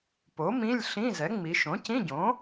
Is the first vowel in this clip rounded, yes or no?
yes